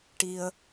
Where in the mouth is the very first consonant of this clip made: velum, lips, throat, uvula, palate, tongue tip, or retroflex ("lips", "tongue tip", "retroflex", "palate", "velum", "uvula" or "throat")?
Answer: retroflex